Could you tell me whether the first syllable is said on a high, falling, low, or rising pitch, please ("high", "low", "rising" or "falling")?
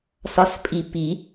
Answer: rising